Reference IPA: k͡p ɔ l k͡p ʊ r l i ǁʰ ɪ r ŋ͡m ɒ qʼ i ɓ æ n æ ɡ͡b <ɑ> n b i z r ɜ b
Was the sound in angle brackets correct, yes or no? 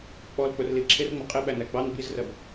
yes